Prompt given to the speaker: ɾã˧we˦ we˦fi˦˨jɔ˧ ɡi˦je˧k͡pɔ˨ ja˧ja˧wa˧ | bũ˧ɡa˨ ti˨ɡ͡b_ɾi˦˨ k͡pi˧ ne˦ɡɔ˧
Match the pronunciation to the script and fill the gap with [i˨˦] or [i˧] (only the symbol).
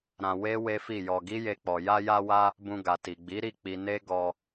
i˨˦